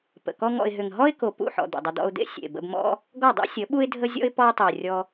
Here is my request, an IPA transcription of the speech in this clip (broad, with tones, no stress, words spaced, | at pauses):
pə̰˨kɔ˦ŋɔ̰˧ɪ̯ ɦʏ˨ŋɦɔ˦ɪ̯ko˨ pṵ˦˨ħɔ̰˨ d̪ṵ˨dˤə˧ d̪ɔ̰˧ʊ̯d̪ḛ˦ sʲḛ˨bə̰˧bmɔ̰˦ | ɡɔ˦˨dˤḛ˦sʲə˨˦ɓu˦ɪ̯ dʱə˦zʲɔ̰˦ɪ̯ pɔ˧ʊ̯tˤʏ˨ʊ̯ rʲɔ˧